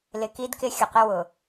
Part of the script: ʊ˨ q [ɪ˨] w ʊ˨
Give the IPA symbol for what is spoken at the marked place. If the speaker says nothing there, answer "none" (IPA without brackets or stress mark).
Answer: ɪ˦